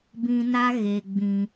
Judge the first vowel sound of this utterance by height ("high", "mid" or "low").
high